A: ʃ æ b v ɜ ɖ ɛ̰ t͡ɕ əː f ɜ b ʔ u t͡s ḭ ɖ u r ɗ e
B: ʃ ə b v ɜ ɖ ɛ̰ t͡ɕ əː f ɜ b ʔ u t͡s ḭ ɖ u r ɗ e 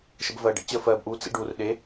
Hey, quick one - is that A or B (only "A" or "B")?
B